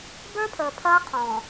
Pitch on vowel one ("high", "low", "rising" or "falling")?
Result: high